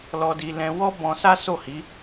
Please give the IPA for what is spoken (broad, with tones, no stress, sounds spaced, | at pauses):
l ɔ˧ d i˧ l ɛ̃˧ w ɔ˦ b ɔ̃˧ s a˦ s o˦˨ h i˨˦